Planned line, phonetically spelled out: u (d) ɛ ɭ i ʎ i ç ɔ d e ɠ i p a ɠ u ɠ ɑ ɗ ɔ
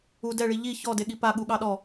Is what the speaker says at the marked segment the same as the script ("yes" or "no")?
yes